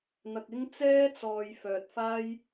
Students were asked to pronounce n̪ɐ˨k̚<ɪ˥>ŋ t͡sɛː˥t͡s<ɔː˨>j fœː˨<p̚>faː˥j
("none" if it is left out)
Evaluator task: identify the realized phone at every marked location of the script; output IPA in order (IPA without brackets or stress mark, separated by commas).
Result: ɪ˥, ɔː˨, t̚